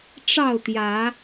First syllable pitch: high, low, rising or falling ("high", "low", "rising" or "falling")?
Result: falling